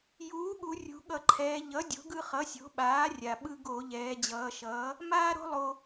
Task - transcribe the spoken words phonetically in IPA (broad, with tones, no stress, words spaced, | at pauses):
juː˩˥ɠu˩˧ rʲṳ˩˧ɠʌ˧˩˧ǃʰɛː˩˧ ʎʌ˩˥ dʲo̤˩˥ɡɯ˦ χʌ˩˥sʲo̤˩˥ɓaː˩˥rʲa˩ ɓɯ˦ɡo˧˩˧ ʎɛː˩˧d͡ʑʌː˩˧ʃʌː˩˥ | maː˦ɾo̤˦lˠo˩